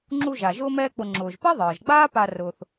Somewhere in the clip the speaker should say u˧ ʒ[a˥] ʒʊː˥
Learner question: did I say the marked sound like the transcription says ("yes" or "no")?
no